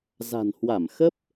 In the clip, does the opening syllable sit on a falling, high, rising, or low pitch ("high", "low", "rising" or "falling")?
low